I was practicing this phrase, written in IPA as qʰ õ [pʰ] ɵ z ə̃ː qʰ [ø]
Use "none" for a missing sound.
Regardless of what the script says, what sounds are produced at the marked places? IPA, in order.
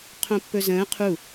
pː, u

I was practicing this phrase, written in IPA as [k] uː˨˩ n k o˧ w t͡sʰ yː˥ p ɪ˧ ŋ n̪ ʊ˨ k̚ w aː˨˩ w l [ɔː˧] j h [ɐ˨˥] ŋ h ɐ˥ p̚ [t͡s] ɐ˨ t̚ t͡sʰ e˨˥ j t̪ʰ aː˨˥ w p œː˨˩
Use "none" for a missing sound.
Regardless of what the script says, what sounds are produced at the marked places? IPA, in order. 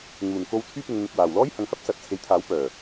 ŋ, ɔː˥, ɐ˨˧, s

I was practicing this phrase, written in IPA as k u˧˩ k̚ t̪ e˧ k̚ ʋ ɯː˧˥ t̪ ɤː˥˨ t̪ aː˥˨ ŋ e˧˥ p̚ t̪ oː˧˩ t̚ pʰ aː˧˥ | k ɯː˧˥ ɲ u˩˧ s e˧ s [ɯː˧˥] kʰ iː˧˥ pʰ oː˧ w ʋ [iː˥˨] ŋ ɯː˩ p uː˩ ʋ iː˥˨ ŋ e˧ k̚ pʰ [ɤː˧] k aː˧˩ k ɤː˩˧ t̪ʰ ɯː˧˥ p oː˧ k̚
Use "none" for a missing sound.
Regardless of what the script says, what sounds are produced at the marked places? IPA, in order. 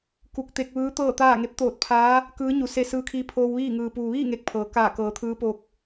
ɯː˧˥, iː˥˨, ɤː˩˧

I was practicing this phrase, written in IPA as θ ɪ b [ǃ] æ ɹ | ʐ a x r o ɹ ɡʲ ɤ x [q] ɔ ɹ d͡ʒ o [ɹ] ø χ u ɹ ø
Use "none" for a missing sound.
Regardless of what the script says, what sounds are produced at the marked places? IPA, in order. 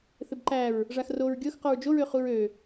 ǃ, q, ɹ

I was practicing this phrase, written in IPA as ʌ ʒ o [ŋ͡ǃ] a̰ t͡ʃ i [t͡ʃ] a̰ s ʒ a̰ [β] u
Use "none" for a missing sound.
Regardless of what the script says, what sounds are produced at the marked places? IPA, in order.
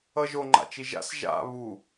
ŋ͡ǃ, ʒ, β

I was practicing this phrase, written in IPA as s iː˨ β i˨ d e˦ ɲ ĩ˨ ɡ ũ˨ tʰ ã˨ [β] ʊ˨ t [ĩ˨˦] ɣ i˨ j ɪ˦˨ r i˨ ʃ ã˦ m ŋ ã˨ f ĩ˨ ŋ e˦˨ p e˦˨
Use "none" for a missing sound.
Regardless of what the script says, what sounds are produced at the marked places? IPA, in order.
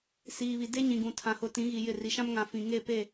h, ĩ˨˦

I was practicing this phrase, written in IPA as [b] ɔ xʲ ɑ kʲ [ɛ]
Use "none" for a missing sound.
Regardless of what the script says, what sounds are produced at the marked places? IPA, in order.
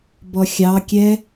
b, ɛ

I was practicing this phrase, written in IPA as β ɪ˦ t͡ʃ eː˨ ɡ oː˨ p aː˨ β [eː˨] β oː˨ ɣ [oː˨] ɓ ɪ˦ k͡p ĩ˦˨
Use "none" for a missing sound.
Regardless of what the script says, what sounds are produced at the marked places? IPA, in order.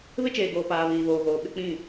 iː˨, oː˨

